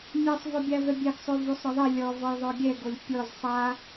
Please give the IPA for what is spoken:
mʲ a sˤ v ɔ bʲ a v ɛ bʲ ɛ ɡ sˤ o v o sˤ ɾ ɔ ðˤ ɛ lʲ ɔ v ɔ j ðˤ o ɡʲ ɛ ɡ o lʲ pʲ ɔ z sˤ a

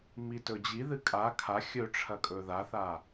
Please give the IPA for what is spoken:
m i t ɵ d͡ʑ i ð ɨ kʼ a kʰ a xʲ ɵ ʈ͡ʂʰ ɐ kʼ ɵ ð a θ a

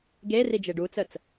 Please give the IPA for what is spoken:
ɡ e r i d͡ʒ e ɖ u t͡s ə t͡s

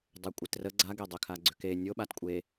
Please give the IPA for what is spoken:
dˤ ɛ kʷʼ e t r ə ɡ͡ǀ a ɡ e dˤ ʏ kʰ a ɡ͡ǀ ʏ k e nʲ o ɓ a t kʷʼ e

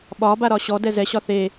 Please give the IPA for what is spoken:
ɓ ɒ b a ɾ ɒ ɕ ɔ d ɛ z ɛ ɕ ɒ θ e

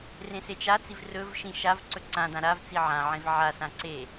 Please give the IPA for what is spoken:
r ẽ s e t͡ʃ a t͡s i v r ɵ v ʃ ĩ ʃ a v ǀ ɵ ǀ ã d ã ɾ a v t͡s i ʕ ã ʕ ẽ v ʕ a s ã ǀ e

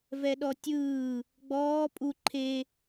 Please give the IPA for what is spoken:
v ɛ ɗ ɔ tʲ ɯː | ɡ͡b ɔː pʼ u ǃʰ e

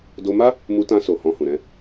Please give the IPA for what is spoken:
d o˧ m a˦ | m u˧ t ã˧ s o˨ h ɔ̃˧ h ũ˨ ɾ ɛ̃˧

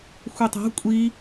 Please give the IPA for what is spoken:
xʷ e tˤ a̤ kʷʼ i

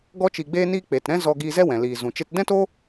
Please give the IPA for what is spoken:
ɡ ɔ˧ t͡ʃ i˨ ɡ͡b eː˧ n iː˧ k͡p e˨ t ɾ ɛ̃˦ z ɔ˧ ɡ iː˧ z ɛ˦ w ɛ̃˨ l iː˨ z ũ˨ t͡ʃ e˦ t d ɛ̃˦ t o˦

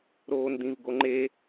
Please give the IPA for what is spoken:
ɾ oː n d̪ ĩ v ɡ o ŋ͡ǃ e

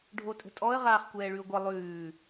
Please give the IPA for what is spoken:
ɖʱ o tʼ ə̤ tʼ ɔ ə̯ ʁ aː χ kʷ ɛː ɭ ʉ ʊ̯ ɡʷ ʌ lˠ ʉː

